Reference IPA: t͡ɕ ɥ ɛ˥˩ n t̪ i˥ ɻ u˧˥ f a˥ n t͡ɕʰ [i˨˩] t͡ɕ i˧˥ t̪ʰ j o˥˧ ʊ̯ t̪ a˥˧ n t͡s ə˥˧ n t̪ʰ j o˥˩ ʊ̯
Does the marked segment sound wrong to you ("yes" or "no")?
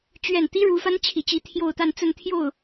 no